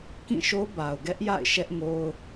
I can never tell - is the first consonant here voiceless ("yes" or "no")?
yes